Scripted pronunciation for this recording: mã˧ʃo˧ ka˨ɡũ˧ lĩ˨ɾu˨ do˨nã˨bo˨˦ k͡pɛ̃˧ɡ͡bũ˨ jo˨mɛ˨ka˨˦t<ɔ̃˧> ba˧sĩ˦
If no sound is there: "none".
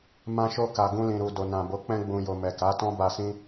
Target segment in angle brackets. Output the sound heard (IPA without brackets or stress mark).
ɔ̃˦